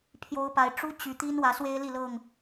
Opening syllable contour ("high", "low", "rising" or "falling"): rising